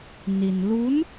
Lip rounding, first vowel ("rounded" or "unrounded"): unrounded